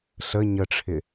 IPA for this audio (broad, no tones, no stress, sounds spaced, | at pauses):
ɬ ə ɲ ə ʈ͡ʂʰ ɪ